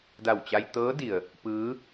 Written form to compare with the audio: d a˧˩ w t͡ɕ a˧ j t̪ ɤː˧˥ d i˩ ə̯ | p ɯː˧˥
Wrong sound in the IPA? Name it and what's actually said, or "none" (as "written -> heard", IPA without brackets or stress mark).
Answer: none